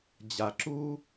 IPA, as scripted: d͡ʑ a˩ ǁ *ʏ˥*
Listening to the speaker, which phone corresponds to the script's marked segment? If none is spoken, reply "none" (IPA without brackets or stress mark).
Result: u˥